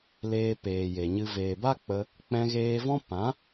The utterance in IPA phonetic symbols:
l eː˧ p eː˨ j e˨ ɲ ɨ˧ v eː˨ b a˦ k͡p ə˧ | k͡p ɛ̃˧ ɣ eː˧ v ɔ̃˦ p ã˨˦

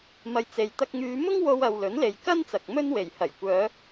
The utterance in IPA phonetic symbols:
m ɐ˧ j t͡s e˨˧ j t̪ ɐ˧ k̚ ŋ yː˨˧ m ʊ˥ ŋ w o˧ w ɐ˨ w l ɵ˨˥ n l e˨ j k ɐ˥ n t͡s ɐ˨ k̚ m ɵ˥ n w e˨˩ j h ɐ˨˩ j kʷ œː˨˧

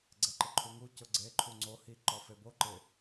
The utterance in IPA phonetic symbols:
ɡ͡ǀ ɛ ǃ ɪ ǃʰ u ŋ u c ʊ ɡ͡ǀ e ǃʰ u ŋ͡ǀ o h i ǃ ɔ f e b o ǃ ɪ

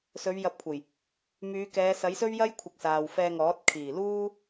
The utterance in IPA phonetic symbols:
s ɵ˨˧ ɥ j ɐ˨˥ p̚ kʷʰ ɐ˨˩ j | m yː˨˧ k ɛː˨˧ s ɐ˨˥ j s ɵ˥ ɥ j ɐ˥ j kʷʰ ɪ˨ k̚ s aː˨ w f ɛː˧ ŋ ɔː˨˥ t̚ kʰ iː˨˩ l uː˥

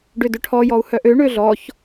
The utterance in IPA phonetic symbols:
ɖ ʏ d ʏ ʈʰ ɔ j ɔ u̯ h œ ʔ ø ɳ ø ɮ ɔ ç

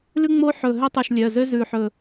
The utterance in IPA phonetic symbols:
l ʉ˥ ŋ͡m o˥ ħ ɵ˧˩ ɦ ø˥ tˤ ʉ˧˩ ʃ lʲ œ˩˧˩ z ø˥ z ʉ˧˩ ħ ɵ˧˩

